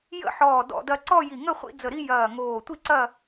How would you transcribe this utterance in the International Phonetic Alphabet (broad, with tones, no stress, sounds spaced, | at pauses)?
j ə̰˥˧ ħ ɔː˧˩ d ɔ̰˥˧ d ɐ˥˧ ǀ ɔ˥˧ j i˧˩ ŋ ə˥˧ χʷ ḭ˥˧ d͡z ə˧˩ ɾ i˥˧ j ɐː˧˩ ŋ oː˧˩ tʷ i˥˧ ǀ ɐ˥˧